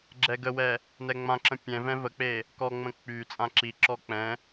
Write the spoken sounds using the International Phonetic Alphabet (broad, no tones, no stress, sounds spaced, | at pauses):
ɡ͡ǁ ɛ ɡ ə w ɛ | n ɛ ŋ͡m ã ǁ ə̃ pʲ ɛ̃ v ɛ̃ v ə k͡p e | k ɔ ŋ͡m ə̃ k͡p y t͡sʼ ã ǁ i ǁ ɔ k͡p ɛ̃